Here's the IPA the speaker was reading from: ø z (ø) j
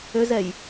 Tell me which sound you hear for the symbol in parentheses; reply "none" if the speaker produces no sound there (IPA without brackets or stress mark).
ɛ